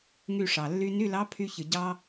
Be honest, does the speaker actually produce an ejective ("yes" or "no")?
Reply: no